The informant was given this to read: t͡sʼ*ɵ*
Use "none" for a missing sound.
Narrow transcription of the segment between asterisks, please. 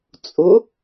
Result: ʊ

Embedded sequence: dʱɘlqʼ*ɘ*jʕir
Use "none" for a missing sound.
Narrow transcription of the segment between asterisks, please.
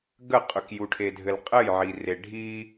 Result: ɘ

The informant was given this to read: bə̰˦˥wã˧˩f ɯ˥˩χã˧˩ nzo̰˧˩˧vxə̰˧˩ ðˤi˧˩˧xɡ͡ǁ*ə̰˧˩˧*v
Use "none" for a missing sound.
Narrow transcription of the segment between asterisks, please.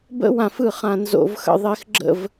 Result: ə̰˥˩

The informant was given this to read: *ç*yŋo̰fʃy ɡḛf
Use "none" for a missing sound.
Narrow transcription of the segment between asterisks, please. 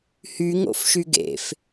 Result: h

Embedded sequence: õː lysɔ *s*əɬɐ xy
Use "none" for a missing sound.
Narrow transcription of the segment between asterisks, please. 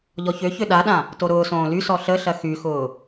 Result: ɬ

